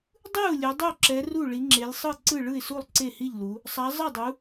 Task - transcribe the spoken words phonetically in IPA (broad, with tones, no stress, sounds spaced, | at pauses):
dˤ ɯ˥˩ ʊ̯ lʲ o˨˦ dˤ o˥˩ ǁ ɛ˨˦ r u˥˩ ɭ i˨˦ ŋ͡ǁ e˨˦ lʲ sˤ ɯ˥˩ ǀ ɯ˥˩ ɭ ɯ˥˩ ɪ̯ s u˥˩ lˠ ǀ e˥˩ h i˥˩ ʎ l u˨˦ | sˤ a˨˦ zˤ ɯ˥˩ dˤ u˨˦